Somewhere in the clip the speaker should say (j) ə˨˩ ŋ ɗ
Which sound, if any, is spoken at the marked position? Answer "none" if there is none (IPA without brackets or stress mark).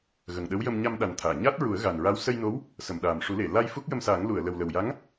ɣ